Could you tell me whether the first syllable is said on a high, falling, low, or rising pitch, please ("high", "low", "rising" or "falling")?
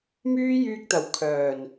high